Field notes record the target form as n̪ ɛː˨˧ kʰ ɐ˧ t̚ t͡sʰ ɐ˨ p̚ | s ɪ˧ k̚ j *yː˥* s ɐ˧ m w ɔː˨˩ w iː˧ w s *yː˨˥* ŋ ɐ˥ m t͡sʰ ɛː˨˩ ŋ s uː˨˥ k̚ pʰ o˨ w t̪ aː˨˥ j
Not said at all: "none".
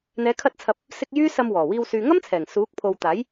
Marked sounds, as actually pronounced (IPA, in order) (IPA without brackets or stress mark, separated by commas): yː˥, yː˨